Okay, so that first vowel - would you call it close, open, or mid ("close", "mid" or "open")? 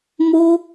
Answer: mid